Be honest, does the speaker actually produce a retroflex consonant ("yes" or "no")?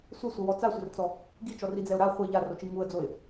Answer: no